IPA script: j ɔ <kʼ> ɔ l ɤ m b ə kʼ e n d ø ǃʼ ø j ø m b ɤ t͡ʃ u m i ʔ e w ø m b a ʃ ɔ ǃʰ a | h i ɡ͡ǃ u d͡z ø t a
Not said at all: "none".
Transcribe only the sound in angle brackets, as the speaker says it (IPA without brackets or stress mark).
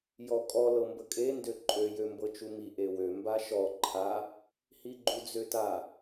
kʼ